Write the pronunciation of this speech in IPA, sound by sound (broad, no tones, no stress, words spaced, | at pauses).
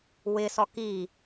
wɪsɔ ki